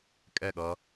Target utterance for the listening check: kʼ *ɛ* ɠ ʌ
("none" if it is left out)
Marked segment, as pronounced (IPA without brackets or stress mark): ɛ